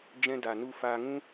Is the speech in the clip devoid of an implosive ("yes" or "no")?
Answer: yes